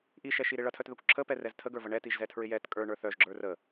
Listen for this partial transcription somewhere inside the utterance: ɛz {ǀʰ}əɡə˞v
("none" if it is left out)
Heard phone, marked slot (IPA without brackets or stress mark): tʰ